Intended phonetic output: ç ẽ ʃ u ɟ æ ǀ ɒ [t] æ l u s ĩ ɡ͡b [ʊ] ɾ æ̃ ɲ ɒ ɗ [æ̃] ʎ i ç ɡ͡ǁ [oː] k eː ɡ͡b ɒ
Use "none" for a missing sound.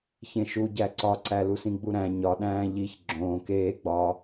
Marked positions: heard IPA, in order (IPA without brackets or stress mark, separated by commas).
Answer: ǀ, u, æ̃ː, õː